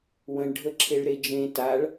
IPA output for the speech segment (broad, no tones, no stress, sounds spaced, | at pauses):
w ə̃ ɳ ɖʱ ə ǁʰ e ɭ ɾ e d͡ʒ ẽ t a ɭ